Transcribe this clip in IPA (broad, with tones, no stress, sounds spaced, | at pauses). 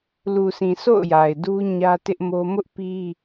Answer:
l u˨ s ĩ˨ sʰ o̰˦˨ ʊ̯ j a˨ ɪ̯ d u˦ ɲ ä˦ t ɪ˦ ʔ m o˦ m ʊ˦ ʔ p i˦